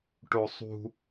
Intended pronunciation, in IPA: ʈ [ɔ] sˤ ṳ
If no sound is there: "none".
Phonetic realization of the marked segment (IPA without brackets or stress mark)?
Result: o